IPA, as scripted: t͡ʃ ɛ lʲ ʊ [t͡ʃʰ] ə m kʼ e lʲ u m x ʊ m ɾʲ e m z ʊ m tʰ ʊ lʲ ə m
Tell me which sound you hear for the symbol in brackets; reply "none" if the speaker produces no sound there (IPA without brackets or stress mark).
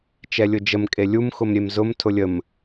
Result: d͡ʒ